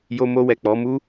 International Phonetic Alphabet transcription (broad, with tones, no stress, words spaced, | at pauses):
jo˧mo˧wɛ˨ k͡pɔ˨˦mu˦